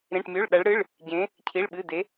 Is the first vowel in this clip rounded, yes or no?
no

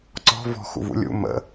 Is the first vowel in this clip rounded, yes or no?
yes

